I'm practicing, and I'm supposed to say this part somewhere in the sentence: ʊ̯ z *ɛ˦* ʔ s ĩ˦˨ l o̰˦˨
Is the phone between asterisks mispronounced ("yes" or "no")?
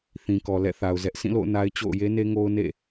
no